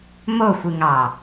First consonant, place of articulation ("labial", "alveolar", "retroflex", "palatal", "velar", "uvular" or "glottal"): labial